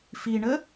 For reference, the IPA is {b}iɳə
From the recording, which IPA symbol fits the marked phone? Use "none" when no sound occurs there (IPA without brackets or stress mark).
f